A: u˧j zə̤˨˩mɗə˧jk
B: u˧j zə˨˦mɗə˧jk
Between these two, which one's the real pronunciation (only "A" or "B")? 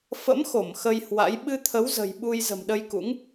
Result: A